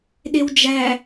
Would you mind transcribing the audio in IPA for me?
ɗ e w d͡ʒ æ

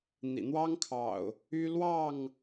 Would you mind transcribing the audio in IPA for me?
n̪ ḭ˨˩ n̪ w ɑ˦ ŋ kʰ ɑ̰˨˩ ʊ̯ | y˦ l w ɑ˥˨ ŋ

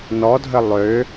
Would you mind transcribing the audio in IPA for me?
n ɔ dʱ ə lˠ ø

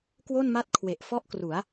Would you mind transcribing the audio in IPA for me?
k w o˥˩ n m a˥˩ t̚ kʰ w e˨˩ ʔ f ɔ˥˩ ʔ k r u˩˦ a̯

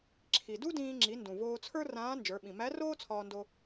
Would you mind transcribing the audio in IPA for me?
ǁʰ i˩ d u˥ d ĩː˧ ŋ͡ǁ i˩˧ n d ũ˩ v oː˧ t͡sʰ ə˞˥ r ãː˧˥ n d͡ʒ ə˞˩˧ ɓ ĩ˩ m æ˧˥ r oː˥ t͡sʰ ɒː˧ n d o˧

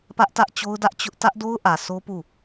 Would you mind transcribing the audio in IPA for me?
p ä˦ ʔ t ä˦ ʔ t͡ɕ o˦ ʊ̯ d ä˦ ʔ t͡ɕ ʊ˦ ʔ t ä˦ ʔ d o˦ ʊ̯ ʔ ä˨ sʰ o˦ p u˦˨

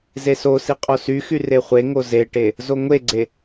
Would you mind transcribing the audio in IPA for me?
z e s o s i qʼ o s y x y r e χʷ e ŋ o z e ʈ e | z o ŋʷ e ɡ͡ǀ e

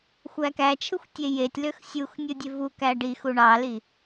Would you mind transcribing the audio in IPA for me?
xʷ æ k æ t͡ʃʰ ɯ xʷ tʲ e j e tʲ l ø x sʲ u x nʲ ɯ dʲ e v u k æ ɖ i x u ɳ ɑ l i

